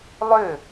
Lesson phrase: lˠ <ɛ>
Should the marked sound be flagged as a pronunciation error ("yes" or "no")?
yes